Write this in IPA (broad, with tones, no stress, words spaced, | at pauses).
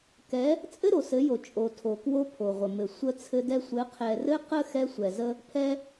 kɛ˨˦ | t͡sʼɘ˦ɾo˨sɘ˨˦jo˨ t͡ʃʼo˨ tʰo˨kwo˦ pʰo˨ʁʷə˨mɘ˨ sʷə˦ t͡sʰɘ˦dɛ˦ sʷɘ˨˦qʰɛ˨rɘ˦qə˦ xɛ˦sʷɛ˨zə˦ | pʰɛ˦